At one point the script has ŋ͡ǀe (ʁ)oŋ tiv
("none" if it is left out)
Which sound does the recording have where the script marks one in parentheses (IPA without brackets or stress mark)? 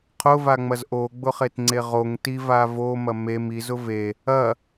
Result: ʁ